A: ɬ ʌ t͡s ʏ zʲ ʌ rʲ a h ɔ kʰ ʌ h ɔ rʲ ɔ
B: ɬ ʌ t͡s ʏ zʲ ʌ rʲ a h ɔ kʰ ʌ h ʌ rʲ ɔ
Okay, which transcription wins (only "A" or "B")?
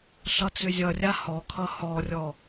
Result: A